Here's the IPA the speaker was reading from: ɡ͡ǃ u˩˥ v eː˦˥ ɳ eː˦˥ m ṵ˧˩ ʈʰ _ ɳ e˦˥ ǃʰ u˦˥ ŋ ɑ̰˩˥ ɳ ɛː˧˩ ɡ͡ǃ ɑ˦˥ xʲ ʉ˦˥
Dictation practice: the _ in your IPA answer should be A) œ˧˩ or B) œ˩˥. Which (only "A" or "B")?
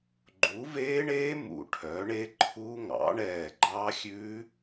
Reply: B